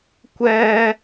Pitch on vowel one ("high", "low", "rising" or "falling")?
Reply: high